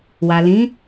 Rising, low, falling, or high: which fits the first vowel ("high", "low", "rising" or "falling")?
low